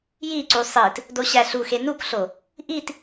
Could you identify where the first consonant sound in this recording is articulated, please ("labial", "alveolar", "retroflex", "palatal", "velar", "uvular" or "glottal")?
palatal